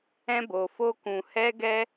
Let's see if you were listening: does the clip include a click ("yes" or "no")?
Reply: no